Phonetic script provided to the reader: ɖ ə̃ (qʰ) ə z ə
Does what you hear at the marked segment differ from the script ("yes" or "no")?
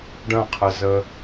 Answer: no